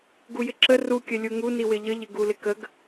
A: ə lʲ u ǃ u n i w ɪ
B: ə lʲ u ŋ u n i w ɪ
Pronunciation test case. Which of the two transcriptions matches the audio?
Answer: B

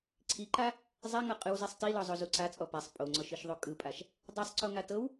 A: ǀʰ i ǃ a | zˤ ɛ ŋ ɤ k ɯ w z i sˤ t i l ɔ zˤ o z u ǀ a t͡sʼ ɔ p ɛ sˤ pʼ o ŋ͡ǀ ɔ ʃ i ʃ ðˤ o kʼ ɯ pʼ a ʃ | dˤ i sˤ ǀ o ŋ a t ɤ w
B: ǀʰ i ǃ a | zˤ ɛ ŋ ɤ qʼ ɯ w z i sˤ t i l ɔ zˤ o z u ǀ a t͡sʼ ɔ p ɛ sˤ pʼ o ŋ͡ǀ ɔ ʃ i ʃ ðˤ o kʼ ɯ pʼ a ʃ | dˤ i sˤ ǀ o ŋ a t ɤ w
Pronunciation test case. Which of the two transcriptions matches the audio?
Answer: B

